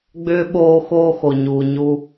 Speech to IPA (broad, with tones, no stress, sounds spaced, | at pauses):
ɡ͡b ʏː˥ ɓ oː˦ x oː˥ x o˨ ɲ uː˨ ɲ u˦